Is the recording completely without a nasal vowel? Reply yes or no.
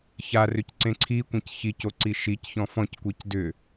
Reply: no